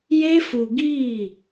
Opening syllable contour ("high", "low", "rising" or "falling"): high